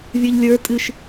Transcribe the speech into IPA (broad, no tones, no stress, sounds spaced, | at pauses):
vʲ ə˞ ʎ lʲ ə˞ tʼ ɨ ʃ